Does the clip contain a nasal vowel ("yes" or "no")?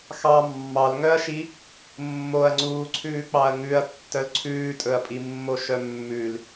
no